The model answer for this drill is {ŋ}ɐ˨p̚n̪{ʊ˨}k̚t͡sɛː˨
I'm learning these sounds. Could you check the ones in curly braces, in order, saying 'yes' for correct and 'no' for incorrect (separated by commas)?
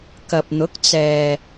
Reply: no, no